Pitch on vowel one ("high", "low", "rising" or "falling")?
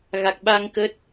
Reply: low